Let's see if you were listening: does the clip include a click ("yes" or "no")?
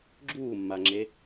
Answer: yes